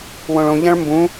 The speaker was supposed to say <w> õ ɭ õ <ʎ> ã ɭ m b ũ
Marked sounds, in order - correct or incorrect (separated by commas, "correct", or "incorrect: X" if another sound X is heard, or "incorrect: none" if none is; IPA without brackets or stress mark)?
correct, correct